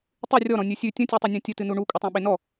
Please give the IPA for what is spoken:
tˤ ʉ rʲ ɔ ɾ ɔ̃ nʲ ʉ sʲ ʉ tʲ ə̃ tʲ e tˤ ɨ nʲ ɔ̃ tʲ ɨ t ɨ n u ɳ u kʷʼ ə tˤ ẽ ɓ e n ɔ

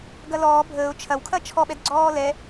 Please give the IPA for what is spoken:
ɡ ɐ l ɔː bʱ əː ʊ̯ t͡ʃʰ ɐ w kʰ ɐ t͡ʃʰ ɔ ɓ ɛ d ɡ͡ǀ ɔː l ɛ

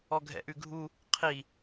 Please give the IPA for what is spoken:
ɔ ɡʱ ɛ̰ ʔ ʉ ɡʱ u | qʰ i

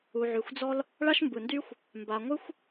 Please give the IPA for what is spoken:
u˩ ʕ y˩ xʷ d͡z ɔ˥ l | ɭ a˥ ʃ m b ɯ˩ n d y˥ xʷ | m b a˩ ŋʷ ɯ˥ xʷ

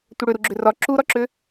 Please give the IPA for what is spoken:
tʷ ə ɽ ʏ ɾ u ɡ͡ǁ ʏ r ɒ ǁ u ɾ ɒ ǁ ʏ

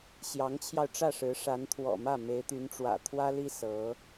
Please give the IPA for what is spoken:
ɕ j ɑ˧˥ ŋ t͡ɕʰ j ɑ˧ ʊ̯ ʈ͡ʂ ä˥˩ ʂ ɻ̩˧˥ ʂ a˧˥ n t̪ʰ w ɔ̰˨˩ m ä˥˩ m e˧˥ ɪ̯ t̪ y˧˥ n ʈ͡ʂ w ä̰˨˩ t̪ʰ w ä˥ l i˥ s ɤ˧˥

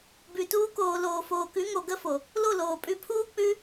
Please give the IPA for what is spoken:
b ʉ˨ t uː˧ k oː˨ l oː˨ f oː˨ k ʉ˨˦ ŋ o˨ ɡ ə˦ f o˨ | l o˦˨ l oː˨ pʼ ʉ˧ pʰ uː˦ k͡p ʉ˦

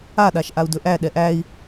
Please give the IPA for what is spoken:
a ɗ a ʃ ʔ a u̯ d ɵ ʔ æ ɗ ɛ ʔ æ i̯

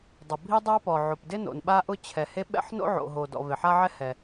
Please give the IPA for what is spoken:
dˤ ʊ˩ bʱ i˥ dˤ a˥ p ɔ˩ ʕ o˩ p d ɪ˥ n o̰˩ n ɓ a˥ ʔ ʊ˥ t͡ɕʰ ɛ˩ h e˥ ɓ ɛ̰˥ ħ n o̰˥ ʕ o̰˩ ɦ o˩ d ɔ̰˩ v e˩ ħ a˥ ʕ ɛ˥ h ɛ˩

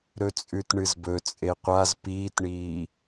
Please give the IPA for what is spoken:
ɾ ɵ t͡sʼ ʉ t ɳ ɨ z b ɵ t͡sʼ e qʷ a z p iː t ɳ iː

